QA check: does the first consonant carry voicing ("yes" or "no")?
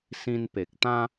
no